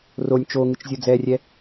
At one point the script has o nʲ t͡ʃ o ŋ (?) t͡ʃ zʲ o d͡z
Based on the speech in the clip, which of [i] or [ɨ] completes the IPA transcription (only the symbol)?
ɨ